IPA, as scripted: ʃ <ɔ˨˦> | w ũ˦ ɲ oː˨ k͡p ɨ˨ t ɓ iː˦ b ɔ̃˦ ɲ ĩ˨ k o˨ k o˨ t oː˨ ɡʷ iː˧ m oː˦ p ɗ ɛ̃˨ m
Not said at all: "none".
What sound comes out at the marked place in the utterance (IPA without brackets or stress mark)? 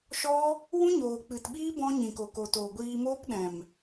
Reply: ɔ˦